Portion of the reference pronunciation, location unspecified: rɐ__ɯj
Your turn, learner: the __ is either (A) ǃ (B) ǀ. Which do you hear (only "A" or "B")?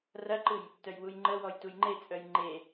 A